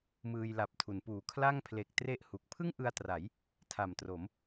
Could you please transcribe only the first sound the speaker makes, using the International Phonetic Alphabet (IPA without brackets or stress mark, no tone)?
m